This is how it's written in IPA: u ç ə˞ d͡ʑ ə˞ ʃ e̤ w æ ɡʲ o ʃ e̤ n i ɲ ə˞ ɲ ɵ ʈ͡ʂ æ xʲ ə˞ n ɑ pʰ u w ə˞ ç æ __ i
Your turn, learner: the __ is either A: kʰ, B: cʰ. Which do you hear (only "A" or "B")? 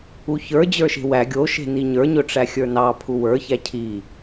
B